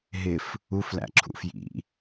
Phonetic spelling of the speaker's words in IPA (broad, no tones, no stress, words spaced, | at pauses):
ɦɪf | uflæ̰ǁʰṵ fjḭ